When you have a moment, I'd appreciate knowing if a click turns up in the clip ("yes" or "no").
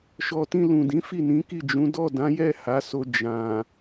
no